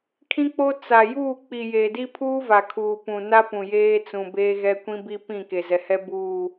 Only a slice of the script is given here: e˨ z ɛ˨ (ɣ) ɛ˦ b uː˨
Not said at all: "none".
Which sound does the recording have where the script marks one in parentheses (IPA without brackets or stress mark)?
h